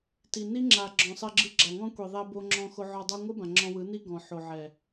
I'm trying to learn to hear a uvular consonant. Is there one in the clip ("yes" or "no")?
no